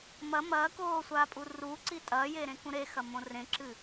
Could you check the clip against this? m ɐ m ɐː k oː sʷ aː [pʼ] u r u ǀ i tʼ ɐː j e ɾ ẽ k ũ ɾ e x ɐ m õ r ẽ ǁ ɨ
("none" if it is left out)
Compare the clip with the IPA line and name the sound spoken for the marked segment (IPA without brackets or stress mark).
pʼ